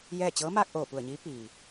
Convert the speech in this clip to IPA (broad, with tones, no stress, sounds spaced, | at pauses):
j ɛː˥˨ t͡ɕ ɤː˧˥ m aː˧ k̚ ʔ oː˧˩ p u˧˩ ə̯ ɲ iː˧˥ p iː˩